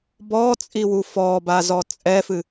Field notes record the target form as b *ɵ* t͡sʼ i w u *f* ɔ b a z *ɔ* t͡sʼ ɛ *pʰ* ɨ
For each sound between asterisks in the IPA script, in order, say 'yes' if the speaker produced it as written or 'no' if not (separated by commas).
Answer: no, yes, yes, no